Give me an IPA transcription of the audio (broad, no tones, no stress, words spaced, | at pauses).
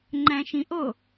ŋ͡ǃæ̃ʃĩʔo